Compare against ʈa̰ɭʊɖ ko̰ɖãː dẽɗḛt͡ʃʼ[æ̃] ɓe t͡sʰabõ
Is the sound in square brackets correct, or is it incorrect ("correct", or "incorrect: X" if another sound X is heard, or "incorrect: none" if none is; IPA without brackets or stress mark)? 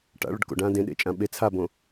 incorrect: ã